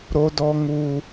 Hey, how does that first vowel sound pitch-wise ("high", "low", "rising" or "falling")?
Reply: high